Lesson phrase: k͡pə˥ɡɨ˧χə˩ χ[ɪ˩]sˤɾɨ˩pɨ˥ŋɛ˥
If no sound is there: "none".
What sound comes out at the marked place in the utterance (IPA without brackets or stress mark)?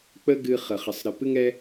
ɪ˩